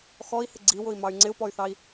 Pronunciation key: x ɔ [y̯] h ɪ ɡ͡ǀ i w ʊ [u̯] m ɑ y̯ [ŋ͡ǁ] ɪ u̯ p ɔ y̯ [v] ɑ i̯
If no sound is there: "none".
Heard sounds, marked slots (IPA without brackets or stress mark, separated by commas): i̯, i̯, ŋ͡ǀ, θ